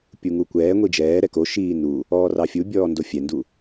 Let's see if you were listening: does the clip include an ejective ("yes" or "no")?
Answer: no